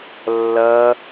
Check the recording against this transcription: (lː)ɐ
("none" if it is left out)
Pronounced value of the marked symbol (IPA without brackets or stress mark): lː